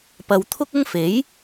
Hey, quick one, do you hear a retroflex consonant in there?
no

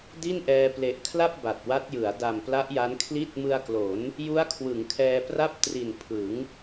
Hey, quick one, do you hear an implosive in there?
no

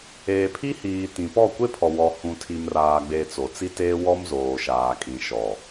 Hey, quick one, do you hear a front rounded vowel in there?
no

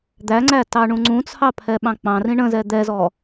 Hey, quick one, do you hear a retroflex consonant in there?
yes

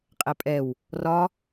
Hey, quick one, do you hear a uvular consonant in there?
yes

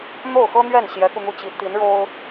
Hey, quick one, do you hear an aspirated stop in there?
no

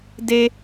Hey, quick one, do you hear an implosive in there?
no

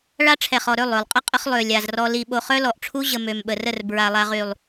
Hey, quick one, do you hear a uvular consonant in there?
yes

